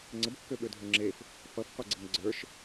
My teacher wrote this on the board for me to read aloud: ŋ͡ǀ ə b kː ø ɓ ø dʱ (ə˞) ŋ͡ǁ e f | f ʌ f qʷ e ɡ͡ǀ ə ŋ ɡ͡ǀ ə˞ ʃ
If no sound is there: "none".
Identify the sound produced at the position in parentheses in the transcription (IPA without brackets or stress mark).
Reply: ə˞